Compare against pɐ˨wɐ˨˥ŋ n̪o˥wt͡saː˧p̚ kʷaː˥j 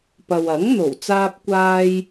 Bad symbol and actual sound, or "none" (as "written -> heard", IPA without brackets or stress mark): o˥ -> o˨˩